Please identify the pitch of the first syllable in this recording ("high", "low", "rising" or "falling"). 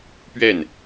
falling